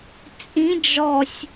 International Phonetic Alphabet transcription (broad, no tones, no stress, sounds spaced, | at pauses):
t͡sʼ ĩ d͡ʒ ɔ sʲ